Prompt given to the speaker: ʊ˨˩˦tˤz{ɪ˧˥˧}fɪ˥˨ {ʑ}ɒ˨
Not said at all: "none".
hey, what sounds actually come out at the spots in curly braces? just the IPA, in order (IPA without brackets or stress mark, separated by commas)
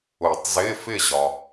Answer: ɪ˧˥˧, ʑ